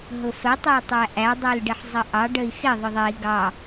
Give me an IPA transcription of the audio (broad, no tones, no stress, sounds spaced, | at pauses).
ɦ ʊ f ə tˤ ə˞ tˤ æ ʔ æ dˤ ə˞ l ɖ ɪ ħ zˤ ə ʔ ɑ ɖ ə i̯ x ɪ ðˤ ʊ ðˤ ɛ i̯ ɡ ɑ